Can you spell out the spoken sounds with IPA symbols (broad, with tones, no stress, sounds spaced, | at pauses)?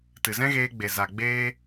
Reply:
t ɨ˨ z ɛ̃˦ ɣ eː˧ ɡ͡b e˨ z a˨ ɡ͡b eː˦